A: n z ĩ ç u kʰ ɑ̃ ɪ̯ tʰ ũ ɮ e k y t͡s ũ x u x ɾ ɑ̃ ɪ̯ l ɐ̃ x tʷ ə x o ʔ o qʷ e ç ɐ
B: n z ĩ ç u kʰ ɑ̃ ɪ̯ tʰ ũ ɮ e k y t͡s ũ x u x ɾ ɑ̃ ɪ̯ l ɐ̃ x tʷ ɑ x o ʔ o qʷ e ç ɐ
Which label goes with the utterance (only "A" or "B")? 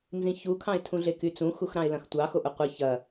B